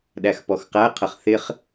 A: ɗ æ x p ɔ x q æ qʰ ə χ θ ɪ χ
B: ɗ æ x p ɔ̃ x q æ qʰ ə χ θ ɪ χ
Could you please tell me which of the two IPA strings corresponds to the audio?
A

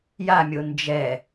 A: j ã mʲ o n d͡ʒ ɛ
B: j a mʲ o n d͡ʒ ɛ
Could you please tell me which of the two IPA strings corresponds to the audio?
B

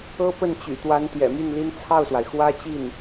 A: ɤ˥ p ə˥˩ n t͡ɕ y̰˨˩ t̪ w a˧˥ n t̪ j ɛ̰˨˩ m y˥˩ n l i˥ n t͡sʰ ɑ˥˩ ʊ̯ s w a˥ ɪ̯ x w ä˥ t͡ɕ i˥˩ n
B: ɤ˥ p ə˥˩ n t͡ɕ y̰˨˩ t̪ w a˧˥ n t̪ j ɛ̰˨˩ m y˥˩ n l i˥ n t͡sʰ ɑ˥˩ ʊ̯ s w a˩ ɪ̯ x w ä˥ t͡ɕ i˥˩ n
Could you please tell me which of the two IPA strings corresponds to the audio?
B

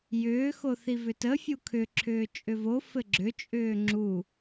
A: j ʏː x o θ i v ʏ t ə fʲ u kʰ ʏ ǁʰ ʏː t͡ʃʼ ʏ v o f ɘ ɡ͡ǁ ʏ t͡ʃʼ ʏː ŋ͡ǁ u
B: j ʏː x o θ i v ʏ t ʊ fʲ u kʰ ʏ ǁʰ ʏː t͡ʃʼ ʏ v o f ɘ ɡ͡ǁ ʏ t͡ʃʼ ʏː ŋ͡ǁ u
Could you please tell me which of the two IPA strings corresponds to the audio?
A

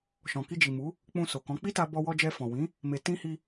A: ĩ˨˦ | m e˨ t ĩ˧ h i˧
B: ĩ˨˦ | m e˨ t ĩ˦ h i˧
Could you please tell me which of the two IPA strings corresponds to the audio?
A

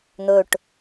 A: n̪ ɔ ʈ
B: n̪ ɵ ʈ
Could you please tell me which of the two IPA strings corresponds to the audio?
B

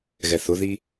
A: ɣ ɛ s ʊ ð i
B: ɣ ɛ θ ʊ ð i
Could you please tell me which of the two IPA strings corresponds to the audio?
B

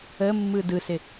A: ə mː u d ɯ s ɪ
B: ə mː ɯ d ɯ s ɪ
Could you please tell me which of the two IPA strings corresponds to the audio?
B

